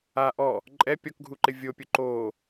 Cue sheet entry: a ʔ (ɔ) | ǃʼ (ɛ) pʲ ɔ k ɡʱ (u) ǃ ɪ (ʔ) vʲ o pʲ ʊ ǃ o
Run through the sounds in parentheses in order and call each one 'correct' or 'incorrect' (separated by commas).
correct, correct, correct, incorrect